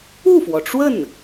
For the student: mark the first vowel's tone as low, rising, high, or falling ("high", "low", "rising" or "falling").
falling